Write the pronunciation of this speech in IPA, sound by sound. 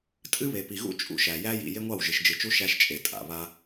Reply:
tʼɨ˦βe˨pi˨ɣṵ˦ t͡ʃʼṵ˦ʃæ˨ jæ˦ jḭ˨ je˦ŋʷɑ˦˨w ʒɨ˨ʃd͡ʒɨ˨t͡ʃu˦ ʃæ˦ʃt͡ʃʼe˨ tʼa̰˨ βa˦

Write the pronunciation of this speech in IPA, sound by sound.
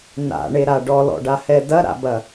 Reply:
na̰ɳeɾa ɖɔlɔ̰ɖahɛ dɐɾa̰bɐ

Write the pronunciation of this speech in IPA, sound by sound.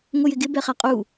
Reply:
ŋʷəjɪɡɪ bɛχæqʼu

